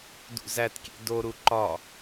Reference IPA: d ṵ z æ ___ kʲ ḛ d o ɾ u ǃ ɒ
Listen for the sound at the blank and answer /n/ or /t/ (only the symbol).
t